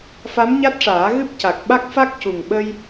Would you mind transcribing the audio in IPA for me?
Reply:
f a˧˥ m ɲ a˦˥ t̚ ʂ aː˨˩˦ ɣ ɨ˦˥ p̚ c a˨˩ k̚ ɓ a˦˥ k̚ f a˦˥ k̚ c u˨˩ ŋ ɓ ə˧ j

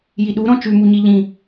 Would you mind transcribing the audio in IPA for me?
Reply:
j i ɗ u ɾ ɔ̃ t͡ʃ ʉ m u ɲ i ʎ ĩ

